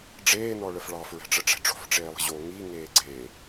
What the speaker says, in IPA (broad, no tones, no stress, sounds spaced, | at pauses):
ɖ͡ʐ eː n ɔ ɭ ə f ɭ ɑ f ɹ ɛ̤ ʈ͡ʂ ə ʈ͡ʂ ɛ̤ ʈ͡ʂ o̤ f ʈ͡ʂ eː lˠ ə̤ ʑ o ŋ i ŋ eː ɡ͡ǀ e